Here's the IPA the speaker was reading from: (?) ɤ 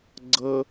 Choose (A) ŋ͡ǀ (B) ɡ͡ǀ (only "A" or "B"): B